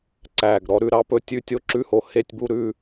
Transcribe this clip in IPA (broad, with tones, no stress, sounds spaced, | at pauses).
ǀ æ˨˩ ɡ ɾ ɔ˧ ɾ ʉ˧ ɾ ɑ˧ p ɵ˧ tʲ ʉ˧ tʲ o˧ ǁ ʉ˧ h o˨˩ h e˧ tʲ b u˧ ɾ ʉ˧